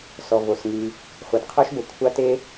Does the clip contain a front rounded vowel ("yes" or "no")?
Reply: yes